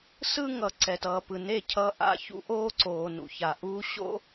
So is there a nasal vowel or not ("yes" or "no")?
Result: no